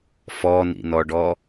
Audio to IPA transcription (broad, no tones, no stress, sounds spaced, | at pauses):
f ɔ n ḭ n ɔ ɖ ɔ